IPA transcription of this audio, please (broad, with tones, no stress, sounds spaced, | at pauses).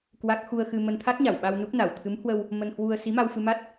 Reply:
k w a˦˥ k̚ x u˧ ə̯ x ɨ˧ m ə˧ n t̪ʰ a˦˥ t̚ ɲ a˧˩ w ɓ a˧ w n u˦˥ p̚ n a˧˩ w t̪ʰ ɨ˨˦ m h w ə˧ w | m ə˧ n h w u˧ ə̯ s i˨˦ m a˧ w f ɨ˧ m a˦˥ t̚